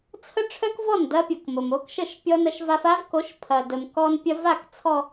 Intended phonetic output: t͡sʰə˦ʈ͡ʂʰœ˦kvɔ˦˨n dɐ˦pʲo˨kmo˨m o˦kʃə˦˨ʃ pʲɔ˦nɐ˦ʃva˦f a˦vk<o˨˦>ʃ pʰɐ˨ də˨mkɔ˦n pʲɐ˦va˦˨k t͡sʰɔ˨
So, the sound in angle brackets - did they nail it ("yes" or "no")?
yes